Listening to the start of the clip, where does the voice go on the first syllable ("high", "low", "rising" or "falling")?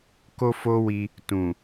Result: high